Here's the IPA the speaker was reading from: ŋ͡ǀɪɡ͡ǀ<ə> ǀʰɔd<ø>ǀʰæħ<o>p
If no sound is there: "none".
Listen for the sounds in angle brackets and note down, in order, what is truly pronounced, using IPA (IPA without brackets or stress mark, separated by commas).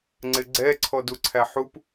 ɛ, u, u